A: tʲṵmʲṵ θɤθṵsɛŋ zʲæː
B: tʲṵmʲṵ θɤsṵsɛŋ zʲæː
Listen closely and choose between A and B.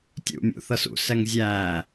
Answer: B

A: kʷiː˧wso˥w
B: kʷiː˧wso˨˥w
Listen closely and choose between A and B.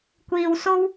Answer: A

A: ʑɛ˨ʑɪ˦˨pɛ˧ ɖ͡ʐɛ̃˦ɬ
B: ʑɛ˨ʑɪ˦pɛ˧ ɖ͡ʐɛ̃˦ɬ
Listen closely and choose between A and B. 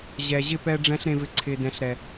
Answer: A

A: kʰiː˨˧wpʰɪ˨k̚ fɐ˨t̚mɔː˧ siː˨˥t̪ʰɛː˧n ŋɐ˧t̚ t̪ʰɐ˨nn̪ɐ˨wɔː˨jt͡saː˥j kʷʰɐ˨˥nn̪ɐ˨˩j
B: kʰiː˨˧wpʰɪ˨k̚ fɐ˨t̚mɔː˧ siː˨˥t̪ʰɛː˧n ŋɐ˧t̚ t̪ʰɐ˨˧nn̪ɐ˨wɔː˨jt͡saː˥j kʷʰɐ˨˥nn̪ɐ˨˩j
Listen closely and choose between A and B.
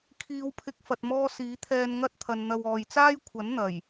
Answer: A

